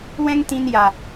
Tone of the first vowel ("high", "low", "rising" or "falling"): high